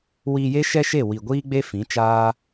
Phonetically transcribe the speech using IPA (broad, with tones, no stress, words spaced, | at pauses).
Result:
wiː˧je˦ʃɛ˦ʃe˦˨ wi˨ɡʷiː˦ɡ͡be˦ fĩ˨˦t͡ʃaː˦